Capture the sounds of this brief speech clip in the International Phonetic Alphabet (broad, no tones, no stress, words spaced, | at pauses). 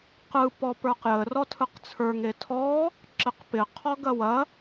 qɯ pɔpə˞qjə rɔtʰɯqt͡sʰə˞ ŋetʰɔ | ǁɪqpɪ qʰɔɡɐwɐ